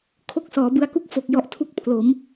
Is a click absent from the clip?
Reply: yes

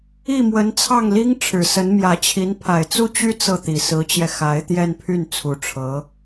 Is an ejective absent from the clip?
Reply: yes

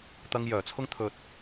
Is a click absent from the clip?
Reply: yes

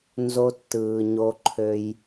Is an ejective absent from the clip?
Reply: yes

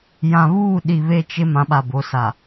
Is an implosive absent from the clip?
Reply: no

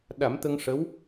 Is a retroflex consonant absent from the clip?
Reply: no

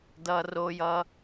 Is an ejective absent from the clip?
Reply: yes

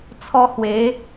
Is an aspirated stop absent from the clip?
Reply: no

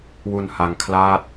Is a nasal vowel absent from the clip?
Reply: yes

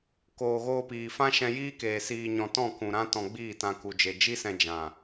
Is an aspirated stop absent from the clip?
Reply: yes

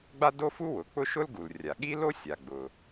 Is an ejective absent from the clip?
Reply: yes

